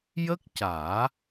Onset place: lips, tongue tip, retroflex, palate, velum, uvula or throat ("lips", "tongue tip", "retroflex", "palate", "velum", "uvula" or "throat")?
palate